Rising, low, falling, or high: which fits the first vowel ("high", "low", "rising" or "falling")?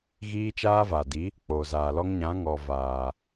high